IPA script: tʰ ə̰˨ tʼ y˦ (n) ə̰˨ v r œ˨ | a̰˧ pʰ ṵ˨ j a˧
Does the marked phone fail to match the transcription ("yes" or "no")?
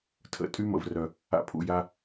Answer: yes